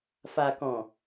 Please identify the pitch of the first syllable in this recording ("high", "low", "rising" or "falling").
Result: low